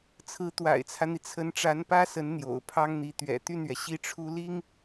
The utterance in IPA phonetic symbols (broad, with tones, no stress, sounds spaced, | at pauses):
t͡sʰ ɹ̩˧˥ t̪ w a̰˨˩ ɪ̯ t͡sʰ ä˦ n̪ i˩ t͡sʰ ə˧˥ n ʈ͡ʂ a˧˥ n p ä˥ s ə˧˥ n n̪ j o̰˨˩ ʊ̯ pʰ ɑ˥ ŋ n̪ i˧˥ t̪ ɥ ɛ̰˨˩ t̪ y˥˩ n ɥ ɛ˩ ɕ i˥˩ ʈ͡ʂʰ u˥ l i˥ ŋ